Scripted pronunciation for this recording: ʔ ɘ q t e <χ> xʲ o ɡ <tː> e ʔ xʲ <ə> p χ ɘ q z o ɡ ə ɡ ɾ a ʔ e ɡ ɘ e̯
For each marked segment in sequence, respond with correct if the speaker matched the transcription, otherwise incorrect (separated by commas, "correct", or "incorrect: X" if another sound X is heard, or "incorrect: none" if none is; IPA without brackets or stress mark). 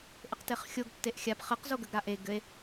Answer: correct, correct, incorrect: a